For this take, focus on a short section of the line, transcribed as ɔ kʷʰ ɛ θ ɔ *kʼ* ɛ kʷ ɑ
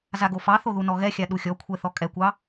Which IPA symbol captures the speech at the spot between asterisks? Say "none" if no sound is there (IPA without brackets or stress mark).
kʼ